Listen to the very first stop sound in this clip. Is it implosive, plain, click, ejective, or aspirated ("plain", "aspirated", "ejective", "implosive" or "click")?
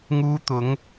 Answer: plain